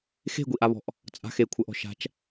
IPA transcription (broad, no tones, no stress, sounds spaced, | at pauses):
x e̤ ɡʷ i ʔ a β ɔ̤ ʔ | t͡sʼ a̤ x e kʷʰ ɜ ʔ ɔ̤ ʃ a̤ t͡ʃ